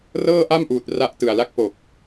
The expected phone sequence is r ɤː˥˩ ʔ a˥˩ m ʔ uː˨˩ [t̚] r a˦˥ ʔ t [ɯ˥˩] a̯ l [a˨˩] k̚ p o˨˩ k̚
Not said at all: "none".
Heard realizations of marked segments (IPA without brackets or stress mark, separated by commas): t̚, ɯ˨˩, a˦˥